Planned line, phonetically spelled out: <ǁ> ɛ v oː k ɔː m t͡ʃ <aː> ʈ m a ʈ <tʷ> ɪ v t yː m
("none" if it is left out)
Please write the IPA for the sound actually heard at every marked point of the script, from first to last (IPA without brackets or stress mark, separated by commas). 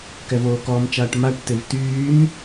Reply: k, aː, t